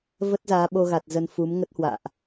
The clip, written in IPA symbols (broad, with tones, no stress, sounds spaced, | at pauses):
v ə˦˥ t̚ z aː˨˦ ɓ o˧ ɣ a˨˩ t̚ z ə˧ n f u˨˦ m ŋ ə˦˥ t̚ h w a̰ː˧˨ ʔ